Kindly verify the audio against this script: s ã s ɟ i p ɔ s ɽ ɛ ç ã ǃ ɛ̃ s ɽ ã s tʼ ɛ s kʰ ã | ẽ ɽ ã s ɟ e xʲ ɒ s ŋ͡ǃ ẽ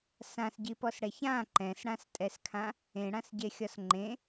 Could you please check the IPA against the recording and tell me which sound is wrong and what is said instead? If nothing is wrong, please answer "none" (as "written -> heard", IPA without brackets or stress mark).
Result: none